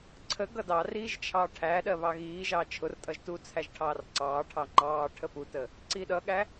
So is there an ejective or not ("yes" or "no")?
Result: yes